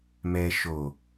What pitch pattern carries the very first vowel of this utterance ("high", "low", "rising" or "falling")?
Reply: low